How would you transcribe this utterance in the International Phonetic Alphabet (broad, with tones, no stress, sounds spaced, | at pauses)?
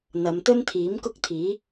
n̪ ɐ˨˧ m t̪ ɵ˥ n t̪ʰ iː˨˥ m k ʊ˥ k̚ t̪ʰ iː˨˥